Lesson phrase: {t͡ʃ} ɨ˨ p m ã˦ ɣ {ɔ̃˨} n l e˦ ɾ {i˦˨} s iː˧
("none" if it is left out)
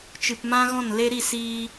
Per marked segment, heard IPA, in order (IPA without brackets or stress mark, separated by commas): t͡ʃ, ɔ̃˦˨, i˦˨